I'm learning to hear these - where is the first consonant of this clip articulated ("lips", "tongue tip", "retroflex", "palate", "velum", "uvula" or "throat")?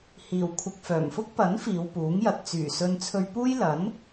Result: throat